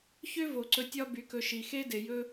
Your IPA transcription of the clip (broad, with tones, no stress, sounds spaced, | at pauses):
ç ø˥ v o˩ ǀ ɵ˨ tʲ ɒ˦ b y˨ k ɵ˨ ʃ i˨ x e˥ d e˨ j ɵ˦